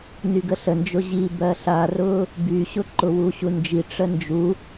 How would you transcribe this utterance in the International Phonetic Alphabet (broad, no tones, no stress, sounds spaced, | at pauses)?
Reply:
n y ɡ ə ɬ ə n d͡ʒ ʊ ʑ i b ɜ ɬ a r ʊ | b y ɕ ʊ ǃ ʊ w u ɕ u n d͡ʒ i ʈ͡ʂ ə n d͡ʒ u